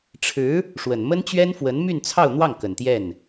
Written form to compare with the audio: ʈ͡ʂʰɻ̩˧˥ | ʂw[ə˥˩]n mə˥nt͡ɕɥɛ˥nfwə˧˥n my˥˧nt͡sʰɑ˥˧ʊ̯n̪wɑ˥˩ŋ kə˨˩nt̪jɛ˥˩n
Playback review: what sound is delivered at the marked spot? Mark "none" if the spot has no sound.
ə˨˩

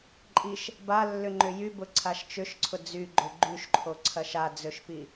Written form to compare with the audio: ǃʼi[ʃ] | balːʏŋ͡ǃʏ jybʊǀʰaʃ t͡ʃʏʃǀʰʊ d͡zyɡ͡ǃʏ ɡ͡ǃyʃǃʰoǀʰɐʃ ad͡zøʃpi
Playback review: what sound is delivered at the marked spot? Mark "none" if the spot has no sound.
ʃ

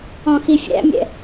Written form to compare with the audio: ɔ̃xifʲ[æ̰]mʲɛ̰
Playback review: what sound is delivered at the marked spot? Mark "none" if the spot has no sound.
æ̰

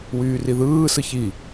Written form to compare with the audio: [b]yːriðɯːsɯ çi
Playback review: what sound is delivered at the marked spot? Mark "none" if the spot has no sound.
w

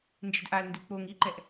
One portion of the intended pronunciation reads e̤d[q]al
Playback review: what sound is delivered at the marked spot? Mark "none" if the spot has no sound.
ʔ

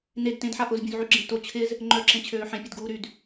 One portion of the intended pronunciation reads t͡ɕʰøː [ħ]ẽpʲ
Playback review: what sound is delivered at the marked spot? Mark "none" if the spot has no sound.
ħ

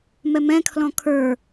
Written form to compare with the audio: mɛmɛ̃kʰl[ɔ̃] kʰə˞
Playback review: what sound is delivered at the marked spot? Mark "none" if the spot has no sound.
ɔ̃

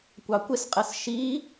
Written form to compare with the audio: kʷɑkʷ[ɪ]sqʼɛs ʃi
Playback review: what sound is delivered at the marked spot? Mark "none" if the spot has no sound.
ɪ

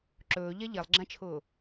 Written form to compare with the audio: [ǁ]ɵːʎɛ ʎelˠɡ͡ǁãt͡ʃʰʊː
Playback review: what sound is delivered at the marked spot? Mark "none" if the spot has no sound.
ǁ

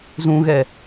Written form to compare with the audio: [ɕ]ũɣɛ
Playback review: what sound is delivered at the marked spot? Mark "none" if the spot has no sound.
z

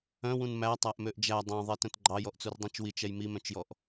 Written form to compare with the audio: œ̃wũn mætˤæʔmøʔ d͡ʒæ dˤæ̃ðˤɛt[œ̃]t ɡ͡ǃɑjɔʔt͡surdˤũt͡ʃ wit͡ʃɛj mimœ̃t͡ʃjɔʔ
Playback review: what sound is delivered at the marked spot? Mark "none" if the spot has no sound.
œ̃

